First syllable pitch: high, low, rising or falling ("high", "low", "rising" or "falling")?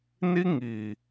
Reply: high